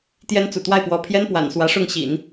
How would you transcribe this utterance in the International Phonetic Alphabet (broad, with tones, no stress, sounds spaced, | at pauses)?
t̪ j ɛ˥ n t͡s ṵ˨˩ t̪ w a˥˩ ɪ̯ p w ɔ˧˥ pʰ j ɛ˥ n p w a̰˨˩ n s w ä˧˥ ʂ ʊ˥˩ ŋ ɕ ḭ˨˩˦ n